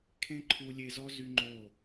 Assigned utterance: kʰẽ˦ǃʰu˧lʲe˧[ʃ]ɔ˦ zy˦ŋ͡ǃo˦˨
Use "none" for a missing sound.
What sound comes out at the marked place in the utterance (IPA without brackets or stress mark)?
z